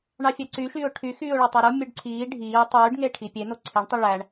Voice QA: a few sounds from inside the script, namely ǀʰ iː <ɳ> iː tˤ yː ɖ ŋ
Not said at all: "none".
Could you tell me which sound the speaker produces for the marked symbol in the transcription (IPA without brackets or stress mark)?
ɖʱ